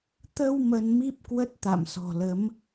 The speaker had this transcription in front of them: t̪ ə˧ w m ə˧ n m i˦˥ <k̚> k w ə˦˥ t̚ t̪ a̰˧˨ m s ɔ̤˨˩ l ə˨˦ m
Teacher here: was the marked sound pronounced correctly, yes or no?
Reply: no